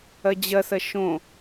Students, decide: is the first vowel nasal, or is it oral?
oral